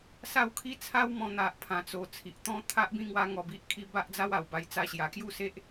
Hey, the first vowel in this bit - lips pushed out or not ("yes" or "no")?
no